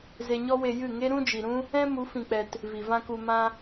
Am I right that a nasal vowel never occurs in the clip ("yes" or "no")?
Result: no